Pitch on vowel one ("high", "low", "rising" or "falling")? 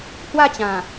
falling